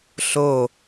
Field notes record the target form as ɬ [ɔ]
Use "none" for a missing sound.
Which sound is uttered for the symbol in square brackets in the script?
o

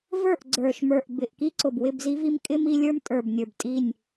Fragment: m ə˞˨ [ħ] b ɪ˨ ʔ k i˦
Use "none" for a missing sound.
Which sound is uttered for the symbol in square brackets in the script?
ʔ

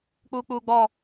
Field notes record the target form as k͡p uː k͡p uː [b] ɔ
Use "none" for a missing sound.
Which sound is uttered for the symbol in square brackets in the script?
ɡ͡b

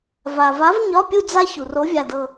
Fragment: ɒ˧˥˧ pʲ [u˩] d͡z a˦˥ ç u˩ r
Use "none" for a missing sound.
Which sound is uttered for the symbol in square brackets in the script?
u˥˧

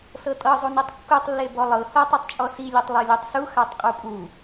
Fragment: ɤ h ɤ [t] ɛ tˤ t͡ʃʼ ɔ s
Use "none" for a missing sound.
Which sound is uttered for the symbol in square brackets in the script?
tˤ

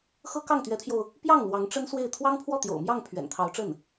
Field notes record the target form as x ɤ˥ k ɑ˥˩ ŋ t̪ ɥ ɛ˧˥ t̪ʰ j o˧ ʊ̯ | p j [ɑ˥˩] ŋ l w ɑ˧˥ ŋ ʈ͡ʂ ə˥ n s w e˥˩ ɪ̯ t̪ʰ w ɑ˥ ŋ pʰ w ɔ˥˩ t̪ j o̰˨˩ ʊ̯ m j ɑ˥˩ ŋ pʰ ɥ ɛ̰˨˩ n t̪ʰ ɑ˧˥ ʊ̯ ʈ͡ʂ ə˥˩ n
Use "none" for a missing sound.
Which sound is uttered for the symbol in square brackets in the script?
ɑ˥˩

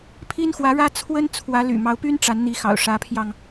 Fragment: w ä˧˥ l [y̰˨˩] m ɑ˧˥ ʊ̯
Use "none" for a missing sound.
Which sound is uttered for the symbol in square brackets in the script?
y̰˨˩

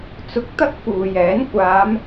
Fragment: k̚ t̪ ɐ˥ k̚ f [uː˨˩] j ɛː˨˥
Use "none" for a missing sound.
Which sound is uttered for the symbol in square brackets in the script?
uː˨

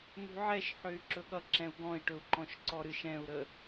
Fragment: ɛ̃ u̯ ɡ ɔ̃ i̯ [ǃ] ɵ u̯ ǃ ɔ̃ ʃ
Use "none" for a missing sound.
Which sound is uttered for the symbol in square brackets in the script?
ʈ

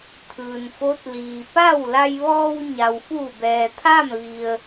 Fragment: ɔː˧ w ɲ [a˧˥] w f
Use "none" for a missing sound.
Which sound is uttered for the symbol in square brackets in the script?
a˩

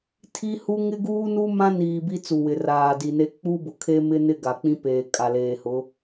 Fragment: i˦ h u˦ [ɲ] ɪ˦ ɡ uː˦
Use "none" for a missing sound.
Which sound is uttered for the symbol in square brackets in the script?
ŋ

